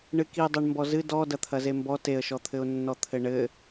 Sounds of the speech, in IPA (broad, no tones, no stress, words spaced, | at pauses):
ɳɨkidˤeɳ mbɔzɨ dɔ dɐt̪ʰɐzembɔ teə̯ʃɔt̪ʰɘʊ̯nːɔ t̪ʰɘɳɘ